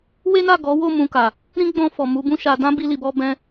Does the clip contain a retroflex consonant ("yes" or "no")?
no